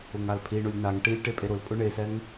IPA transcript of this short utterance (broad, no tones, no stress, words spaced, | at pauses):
ʊŋalpʰi ɳʊlʲnaŋ ʈilʲ ʈepʼeɾʊl pʼʊɳesɛŋ